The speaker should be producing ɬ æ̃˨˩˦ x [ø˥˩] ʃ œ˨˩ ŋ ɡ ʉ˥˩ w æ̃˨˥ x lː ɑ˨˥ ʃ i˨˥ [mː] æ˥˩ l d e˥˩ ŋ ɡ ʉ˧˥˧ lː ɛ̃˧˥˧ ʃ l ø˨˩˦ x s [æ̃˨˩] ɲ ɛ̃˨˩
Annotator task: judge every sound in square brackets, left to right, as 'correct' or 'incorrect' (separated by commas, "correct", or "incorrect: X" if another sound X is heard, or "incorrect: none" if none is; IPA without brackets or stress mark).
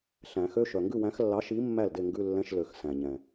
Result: incorrect: ø˧˥˧, correct, correct